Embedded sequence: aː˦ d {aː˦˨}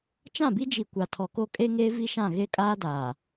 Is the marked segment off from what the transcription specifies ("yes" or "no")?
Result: yes